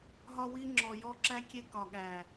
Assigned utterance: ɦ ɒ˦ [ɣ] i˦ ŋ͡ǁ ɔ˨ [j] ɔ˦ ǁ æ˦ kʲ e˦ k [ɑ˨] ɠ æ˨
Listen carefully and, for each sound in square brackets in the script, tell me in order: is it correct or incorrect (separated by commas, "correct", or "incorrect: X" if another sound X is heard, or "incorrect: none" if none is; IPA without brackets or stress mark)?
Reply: incorrect: w, correct, incorrect: ɒ˨